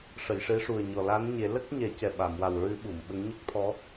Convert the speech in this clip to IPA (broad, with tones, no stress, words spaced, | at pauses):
ʂə˨˩˨jʂe˧˥ʂu˨˩ə̯ɲɔ˨˩ la˧˥nɲe˨˩˦ lə˦˥k̚ ɲɛ˨˩˦cɛ˨˩ ɓa˨˩˨mwa˨˩wɹɨ˧˥ ɓu˨˩˨mɓə˧˥ŋ ɲə˦˥k̚t̪ʰɔ˧˥